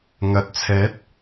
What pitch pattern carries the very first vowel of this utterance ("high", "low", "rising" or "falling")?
rising